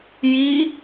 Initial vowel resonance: oral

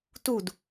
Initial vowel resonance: oral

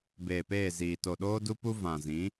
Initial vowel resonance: oral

